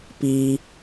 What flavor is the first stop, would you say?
plain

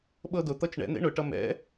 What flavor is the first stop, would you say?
implosive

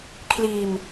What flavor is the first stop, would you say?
aspirated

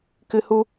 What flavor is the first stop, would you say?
plain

